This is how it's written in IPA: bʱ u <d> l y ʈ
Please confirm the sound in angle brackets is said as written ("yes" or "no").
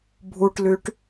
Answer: no